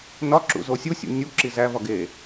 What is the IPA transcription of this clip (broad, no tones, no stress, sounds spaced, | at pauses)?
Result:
n ɒ ǁ ṵ z o sʲ u sʲ ṵ nʲ u ǁ i z æ v ɒ ɡ e